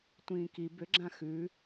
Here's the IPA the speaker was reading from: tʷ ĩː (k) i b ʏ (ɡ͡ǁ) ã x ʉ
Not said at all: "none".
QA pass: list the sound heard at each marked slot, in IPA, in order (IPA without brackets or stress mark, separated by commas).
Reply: k, ɡ͡ǁ